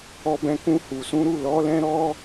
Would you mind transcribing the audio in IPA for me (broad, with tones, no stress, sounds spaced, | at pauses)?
ɔ˧ b ɛ̃˧ k ũ˧ h u˨ s ũ˨˦ ɾ u˦˨ l ɔ˨˦ l ɛ̃˦ ɾ ɔ˦